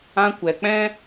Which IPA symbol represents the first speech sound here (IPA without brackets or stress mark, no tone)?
ã